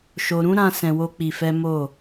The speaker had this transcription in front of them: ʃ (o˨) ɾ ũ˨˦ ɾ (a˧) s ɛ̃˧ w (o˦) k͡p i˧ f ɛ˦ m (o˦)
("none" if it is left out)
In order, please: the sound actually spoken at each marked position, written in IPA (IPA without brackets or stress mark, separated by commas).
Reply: o˨, ã˧, o˦, o˦˨